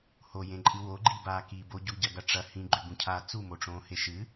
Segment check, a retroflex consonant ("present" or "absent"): present